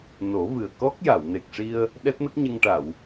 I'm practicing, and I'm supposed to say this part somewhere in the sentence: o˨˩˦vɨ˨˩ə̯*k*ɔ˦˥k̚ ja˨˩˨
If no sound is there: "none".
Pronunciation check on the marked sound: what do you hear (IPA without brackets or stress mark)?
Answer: k